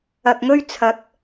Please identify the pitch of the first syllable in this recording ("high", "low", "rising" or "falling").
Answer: low